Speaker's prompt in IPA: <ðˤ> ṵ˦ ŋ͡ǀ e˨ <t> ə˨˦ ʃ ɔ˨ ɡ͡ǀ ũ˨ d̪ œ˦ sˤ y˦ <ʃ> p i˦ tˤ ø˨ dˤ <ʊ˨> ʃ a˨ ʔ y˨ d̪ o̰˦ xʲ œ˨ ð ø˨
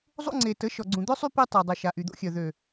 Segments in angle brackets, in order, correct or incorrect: incorrect, correct, incorrect, incorrect

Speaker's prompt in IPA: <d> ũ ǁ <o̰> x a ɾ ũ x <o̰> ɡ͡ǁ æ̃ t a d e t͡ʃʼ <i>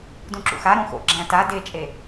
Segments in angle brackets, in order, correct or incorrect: correct, incorrect, correct, incorrect

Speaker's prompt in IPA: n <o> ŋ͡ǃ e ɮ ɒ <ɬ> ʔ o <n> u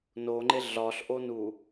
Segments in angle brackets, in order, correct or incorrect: correct, correct, correct

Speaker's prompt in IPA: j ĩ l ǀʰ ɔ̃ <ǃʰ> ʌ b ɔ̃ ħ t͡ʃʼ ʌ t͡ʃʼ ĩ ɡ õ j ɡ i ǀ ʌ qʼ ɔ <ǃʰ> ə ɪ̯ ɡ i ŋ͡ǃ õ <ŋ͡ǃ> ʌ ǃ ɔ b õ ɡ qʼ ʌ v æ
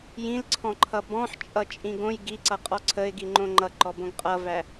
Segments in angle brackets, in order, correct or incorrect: correct, incorrect, correct

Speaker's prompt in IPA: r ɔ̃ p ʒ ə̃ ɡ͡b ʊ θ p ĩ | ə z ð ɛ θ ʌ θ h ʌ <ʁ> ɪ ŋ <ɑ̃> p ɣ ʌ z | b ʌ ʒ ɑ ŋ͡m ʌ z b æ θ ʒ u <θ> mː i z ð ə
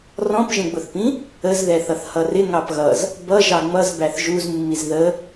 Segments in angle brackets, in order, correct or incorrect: incorrect, incorrect, incorrect

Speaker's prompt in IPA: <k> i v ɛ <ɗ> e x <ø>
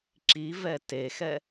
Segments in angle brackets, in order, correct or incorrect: incorrect, incorrect, incorrect

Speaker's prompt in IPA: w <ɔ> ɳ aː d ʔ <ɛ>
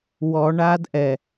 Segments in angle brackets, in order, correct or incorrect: correct, correct

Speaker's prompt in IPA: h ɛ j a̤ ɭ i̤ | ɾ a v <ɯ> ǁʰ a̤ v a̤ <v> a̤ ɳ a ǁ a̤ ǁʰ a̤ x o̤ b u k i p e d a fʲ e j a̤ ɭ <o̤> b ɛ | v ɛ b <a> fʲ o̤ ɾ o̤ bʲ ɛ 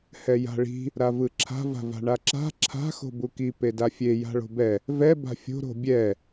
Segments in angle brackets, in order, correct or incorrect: correct, correct, correct, incorrect

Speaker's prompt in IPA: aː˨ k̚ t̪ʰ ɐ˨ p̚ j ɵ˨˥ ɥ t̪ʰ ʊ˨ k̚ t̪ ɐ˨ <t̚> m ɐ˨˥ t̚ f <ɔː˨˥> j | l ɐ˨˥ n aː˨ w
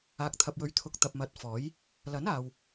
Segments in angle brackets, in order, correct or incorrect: incorrect, correct

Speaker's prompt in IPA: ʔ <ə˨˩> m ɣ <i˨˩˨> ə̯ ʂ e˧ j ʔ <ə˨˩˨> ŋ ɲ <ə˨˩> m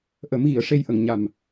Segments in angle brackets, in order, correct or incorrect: incorrect, correct, correct, incorrect

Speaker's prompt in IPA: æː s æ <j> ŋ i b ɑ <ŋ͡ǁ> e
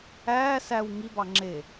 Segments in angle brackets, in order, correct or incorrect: incorrect, correct

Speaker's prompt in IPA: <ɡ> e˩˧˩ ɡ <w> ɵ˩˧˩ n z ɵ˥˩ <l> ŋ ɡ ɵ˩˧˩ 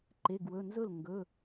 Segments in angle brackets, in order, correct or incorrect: incorrect, correct, correct

